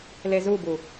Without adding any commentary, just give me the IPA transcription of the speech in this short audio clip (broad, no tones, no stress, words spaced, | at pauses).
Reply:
lezubu